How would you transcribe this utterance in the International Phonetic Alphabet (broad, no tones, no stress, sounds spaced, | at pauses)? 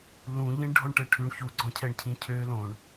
l ũ ʎ ĩ ɳ ɖʱ ɔ ɳ ʈ ɛ ʈʰ ʉ ɳ ç u ɡ͡ǀ ɔ̃ cʰ ɛ ɳ cʰ ĩ cʰ ø l õ ɳ